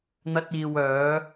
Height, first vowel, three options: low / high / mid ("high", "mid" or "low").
low